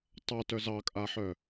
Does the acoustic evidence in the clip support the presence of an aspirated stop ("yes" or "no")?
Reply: no